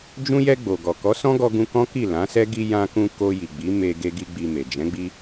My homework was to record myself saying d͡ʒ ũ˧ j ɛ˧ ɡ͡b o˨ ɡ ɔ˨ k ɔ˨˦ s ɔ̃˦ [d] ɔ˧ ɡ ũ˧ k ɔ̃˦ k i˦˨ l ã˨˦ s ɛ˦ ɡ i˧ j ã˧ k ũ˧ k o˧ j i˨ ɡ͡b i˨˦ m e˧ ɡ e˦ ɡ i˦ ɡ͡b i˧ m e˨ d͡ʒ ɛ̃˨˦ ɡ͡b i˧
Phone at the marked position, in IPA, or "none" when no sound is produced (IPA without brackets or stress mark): ɡ